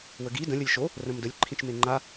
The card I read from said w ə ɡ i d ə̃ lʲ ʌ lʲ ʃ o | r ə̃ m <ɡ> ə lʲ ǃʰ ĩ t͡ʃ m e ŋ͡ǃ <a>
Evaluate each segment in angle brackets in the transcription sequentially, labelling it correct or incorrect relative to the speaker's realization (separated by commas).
incorrect, correct